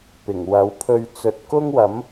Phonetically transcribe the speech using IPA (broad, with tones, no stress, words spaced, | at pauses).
pɪ˨˩ŋwɐ˨˥wpʰɵ˧ɥ t͡sɵ˨t̚kʊ˥ŋwɐ˨˥m